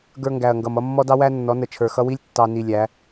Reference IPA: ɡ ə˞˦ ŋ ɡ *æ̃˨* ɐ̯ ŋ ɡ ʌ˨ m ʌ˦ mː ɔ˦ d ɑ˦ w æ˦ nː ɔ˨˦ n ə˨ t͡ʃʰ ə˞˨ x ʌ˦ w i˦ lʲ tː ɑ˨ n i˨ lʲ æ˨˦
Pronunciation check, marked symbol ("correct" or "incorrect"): incorrect